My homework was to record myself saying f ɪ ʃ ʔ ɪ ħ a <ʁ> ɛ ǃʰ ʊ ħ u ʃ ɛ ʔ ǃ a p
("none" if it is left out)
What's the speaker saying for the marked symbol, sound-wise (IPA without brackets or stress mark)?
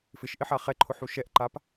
χ